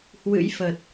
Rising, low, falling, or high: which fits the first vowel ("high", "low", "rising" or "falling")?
rising